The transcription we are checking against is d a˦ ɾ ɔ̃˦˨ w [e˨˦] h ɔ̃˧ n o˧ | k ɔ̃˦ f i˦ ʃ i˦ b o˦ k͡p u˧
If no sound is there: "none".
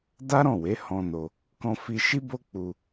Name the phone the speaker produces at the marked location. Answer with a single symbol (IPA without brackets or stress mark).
e˨˦